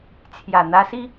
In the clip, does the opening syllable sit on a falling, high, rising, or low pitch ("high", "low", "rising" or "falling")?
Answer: low